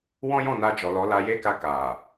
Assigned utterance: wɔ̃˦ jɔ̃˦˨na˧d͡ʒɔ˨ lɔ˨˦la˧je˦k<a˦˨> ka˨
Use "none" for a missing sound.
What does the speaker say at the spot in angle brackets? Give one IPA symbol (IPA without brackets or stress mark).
a˧